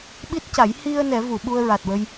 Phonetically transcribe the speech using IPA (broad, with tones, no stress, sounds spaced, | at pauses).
ɓ i˦˥ t̚ c a˨˩˦ j h i˧ ə̯ n ɛ˨˩˦ v u˨˩˨ ɓ u˧ ə̯ ɹ a˨˩ t̚ w ə˧ j